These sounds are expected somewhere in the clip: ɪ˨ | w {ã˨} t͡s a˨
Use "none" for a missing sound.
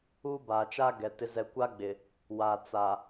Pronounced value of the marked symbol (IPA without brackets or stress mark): a˨